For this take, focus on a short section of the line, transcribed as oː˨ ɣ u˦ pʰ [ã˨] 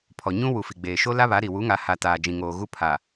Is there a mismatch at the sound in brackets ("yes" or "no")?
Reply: yes